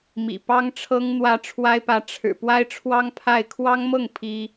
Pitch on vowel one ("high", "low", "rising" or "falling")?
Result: low